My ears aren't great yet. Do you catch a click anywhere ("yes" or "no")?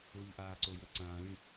yes